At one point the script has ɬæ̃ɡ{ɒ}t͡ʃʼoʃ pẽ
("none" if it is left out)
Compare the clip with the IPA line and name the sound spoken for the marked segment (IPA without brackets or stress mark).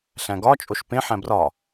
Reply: ɒ